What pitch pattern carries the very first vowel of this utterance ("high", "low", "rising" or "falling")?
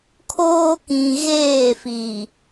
high